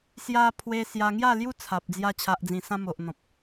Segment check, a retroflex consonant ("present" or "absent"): absent